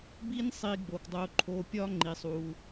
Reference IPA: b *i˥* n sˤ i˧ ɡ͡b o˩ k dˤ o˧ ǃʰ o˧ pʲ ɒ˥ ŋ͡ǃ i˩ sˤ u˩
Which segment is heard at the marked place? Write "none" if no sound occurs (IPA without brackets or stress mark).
i˥